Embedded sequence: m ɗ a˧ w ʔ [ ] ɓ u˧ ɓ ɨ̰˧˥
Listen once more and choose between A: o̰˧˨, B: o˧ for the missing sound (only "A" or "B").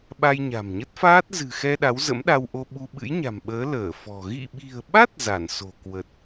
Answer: B